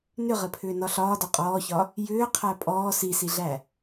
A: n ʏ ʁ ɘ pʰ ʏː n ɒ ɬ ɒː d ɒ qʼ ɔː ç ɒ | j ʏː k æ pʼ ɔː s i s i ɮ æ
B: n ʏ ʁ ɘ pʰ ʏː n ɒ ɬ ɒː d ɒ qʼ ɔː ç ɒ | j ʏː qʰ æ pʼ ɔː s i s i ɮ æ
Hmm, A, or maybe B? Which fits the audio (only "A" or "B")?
B